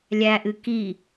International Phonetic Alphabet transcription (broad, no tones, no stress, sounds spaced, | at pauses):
lʲ æ ʔ ɨ k i